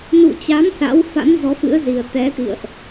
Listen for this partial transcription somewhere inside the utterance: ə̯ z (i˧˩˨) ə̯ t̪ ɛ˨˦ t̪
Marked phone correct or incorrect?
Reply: incorrect